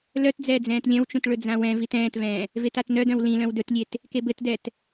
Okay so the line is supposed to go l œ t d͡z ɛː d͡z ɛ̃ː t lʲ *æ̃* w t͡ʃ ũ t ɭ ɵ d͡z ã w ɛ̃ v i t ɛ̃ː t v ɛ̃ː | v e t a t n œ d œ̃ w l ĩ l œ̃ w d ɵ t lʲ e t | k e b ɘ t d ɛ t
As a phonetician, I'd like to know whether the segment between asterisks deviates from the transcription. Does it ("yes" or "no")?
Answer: yes